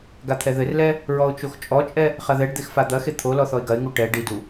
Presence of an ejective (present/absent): present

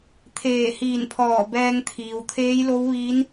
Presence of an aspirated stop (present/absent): present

